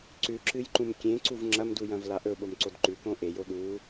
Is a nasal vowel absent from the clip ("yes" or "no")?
no